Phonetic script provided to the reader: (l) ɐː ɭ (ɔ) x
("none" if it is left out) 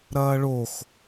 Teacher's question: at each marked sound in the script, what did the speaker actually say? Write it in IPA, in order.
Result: ɾ, o

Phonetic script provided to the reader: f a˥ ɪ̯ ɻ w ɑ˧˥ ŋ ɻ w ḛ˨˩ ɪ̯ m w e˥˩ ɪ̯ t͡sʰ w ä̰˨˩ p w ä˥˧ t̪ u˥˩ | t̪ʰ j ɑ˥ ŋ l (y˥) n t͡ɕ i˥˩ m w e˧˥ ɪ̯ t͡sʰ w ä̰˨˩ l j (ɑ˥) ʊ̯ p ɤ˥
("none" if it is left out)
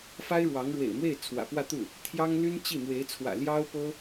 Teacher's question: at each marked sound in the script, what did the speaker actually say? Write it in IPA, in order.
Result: y˥, ɑ˥

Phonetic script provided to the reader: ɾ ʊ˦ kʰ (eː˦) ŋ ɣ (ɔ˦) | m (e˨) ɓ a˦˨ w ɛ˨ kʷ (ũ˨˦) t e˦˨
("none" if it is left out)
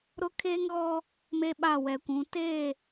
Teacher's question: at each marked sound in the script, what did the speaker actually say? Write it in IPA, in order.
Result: eː˦, ɔ˦, e˦, ũ˨˦

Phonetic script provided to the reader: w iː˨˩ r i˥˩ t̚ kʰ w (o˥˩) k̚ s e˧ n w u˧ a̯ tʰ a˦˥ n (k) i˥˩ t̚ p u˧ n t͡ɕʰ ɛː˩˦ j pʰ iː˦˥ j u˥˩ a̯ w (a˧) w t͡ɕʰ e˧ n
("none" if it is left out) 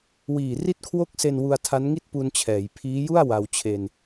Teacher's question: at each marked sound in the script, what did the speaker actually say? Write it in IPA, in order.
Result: o˥˩, ŋ, a˧

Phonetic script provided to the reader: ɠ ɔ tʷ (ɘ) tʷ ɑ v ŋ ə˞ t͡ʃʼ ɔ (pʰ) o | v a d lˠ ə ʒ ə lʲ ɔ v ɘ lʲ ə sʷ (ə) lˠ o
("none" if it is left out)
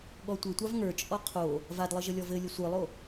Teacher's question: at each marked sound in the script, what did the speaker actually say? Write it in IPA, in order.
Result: ɘ, qʰ, ə˞

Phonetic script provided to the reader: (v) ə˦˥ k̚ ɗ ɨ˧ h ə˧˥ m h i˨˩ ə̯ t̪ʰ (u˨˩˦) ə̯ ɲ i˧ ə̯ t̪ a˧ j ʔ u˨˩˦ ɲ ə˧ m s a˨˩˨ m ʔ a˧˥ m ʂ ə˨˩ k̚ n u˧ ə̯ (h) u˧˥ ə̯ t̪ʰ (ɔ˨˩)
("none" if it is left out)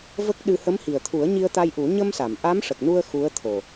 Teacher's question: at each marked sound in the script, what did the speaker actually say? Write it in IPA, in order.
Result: v, u˨˩˦, x, o˨˩

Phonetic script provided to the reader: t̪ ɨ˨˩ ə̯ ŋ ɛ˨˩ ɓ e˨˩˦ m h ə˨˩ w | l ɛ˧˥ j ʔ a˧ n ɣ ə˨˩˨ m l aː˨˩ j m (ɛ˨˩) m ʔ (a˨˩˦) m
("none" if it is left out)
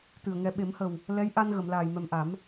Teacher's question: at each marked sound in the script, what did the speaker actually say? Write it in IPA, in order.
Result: ɛ˨˩, a˨˩˦

